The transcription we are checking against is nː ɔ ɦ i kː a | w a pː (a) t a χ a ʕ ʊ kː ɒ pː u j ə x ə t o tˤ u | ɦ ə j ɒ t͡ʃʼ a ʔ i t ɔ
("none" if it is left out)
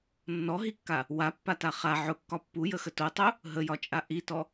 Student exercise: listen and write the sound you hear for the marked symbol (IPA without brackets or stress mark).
a